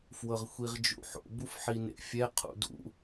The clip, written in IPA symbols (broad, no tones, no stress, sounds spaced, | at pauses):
f w ɤ ʁ xʷ i ʁ d͡ʒ ṵ ħ o̰ b u f ħ i n ḛ fʲ ɛ qʰ ṵ d ṵ